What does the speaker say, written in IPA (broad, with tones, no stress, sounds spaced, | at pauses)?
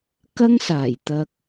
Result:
k ɐ˥ ŋ s aː˨˩ j t̪ ɐ˧ k̚